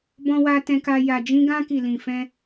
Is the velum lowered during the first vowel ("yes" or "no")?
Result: yes